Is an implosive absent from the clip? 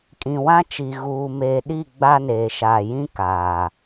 no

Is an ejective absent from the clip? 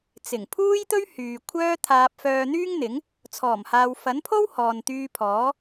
yes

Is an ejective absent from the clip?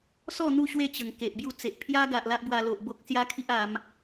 yes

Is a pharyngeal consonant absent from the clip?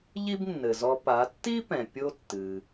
yes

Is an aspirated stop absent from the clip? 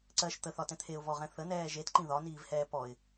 no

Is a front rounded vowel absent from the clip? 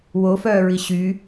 no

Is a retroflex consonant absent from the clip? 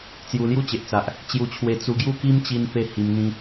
yes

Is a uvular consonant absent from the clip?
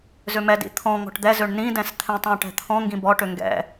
yes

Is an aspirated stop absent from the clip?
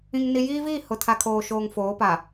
no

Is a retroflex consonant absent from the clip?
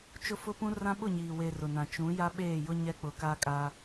yes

